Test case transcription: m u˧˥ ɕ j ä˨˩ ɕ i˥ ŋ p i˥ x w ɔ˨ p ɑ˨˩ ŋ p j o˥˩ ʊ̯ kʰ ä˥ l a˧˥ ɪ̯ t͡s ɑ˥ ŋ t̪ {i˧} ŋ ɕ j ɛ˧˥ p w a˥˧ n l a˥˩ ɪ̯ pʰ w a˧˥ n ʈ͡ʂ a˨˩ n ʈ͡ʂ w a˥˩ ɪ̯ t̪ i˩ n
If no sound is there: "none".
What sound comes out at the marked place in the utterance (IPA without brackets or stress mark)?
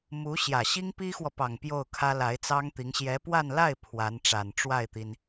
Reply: i˧˥